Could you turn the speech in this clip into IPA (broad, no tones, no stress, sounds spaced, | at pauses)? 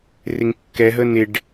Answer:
r ɪ ŋ kː ɛ ɦ ə n ɪ ɖ